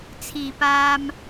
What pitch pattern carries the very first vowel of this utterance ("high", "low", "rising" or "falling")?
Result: low